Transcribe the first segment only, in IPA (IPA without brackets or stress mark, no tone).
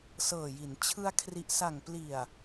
s